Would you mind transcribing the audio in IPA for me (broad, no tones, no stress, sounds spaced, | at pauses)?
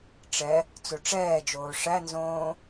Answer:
ʈ͡ʂ ɛ | t͡s o ʈ͡ʂ ɛː d͡ʒ oː ʂ æ n z õː